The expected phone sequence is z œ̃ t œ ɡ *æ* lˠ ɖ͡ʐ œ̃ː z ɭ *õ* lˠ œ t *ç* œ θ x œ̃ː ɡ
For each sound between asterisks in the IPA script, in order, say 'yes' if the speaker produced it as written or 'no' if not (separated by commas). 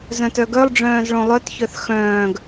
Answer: no, yes, yes